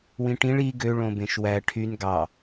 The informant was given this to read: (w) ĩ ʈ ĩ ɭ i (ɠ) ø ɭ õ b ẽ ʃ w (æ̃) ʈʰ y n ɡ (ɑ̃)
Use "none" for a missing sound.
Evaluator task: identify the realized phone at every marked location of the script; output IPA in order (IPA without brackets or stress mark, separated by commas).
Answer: w, ɡ, æ, ɑ